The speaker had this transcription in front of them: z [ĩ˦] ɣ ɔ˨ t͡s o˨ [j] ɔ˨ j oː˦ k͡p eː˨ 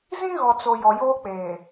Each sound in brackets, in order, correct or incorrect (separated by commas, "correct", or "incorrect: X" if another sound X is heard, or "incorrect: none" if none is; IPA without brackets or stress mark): correct, correct